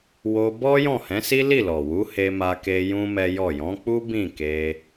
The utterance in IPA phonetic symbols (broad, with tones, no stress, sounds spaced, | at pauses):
w o˧ b ɔ˦ j ɔ̃˦˨ h ɛ̃˨˦ s i˦ l i˦˨ l ɔ˨ w u˨˦ h e˦ m a˦ k e˦ j ũ˦ m ɛ˦ j ɔ˦˨ j ɔ̃˨˦ k͡p u˦ b ĩ˦˨ k e˧